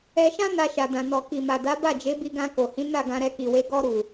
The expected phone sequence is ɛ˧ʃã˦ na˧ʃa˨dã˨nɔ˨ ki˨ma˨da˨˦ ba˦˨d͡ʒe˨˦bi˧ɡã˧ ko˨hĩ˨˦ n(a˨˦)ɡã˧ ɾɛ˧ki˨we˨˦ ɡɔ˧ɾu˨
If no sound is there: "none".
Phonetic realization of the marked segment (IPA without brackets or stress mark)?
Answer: a˦˨